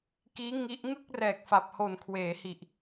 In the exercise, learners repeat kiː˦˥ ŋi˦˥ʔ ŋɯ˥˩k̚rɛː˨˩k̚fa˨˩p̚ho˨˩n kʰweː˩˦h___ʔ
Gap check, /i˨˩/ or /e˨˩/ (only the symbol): i˨˩